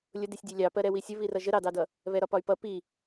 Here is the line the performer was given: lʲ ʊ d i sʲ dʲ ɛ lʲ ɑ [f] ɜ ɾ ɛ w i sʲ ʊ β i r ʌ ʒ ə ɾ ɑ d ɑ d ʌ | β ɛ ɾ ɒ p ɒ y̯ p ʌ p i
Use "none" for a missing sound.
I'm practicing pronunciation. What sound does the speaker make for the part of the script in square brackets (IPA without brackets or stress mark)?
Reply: p